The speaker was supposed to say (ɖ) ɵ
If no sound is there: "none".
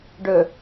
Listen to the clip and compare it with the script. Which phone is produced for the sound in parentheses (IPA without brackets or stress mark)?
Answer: ɖ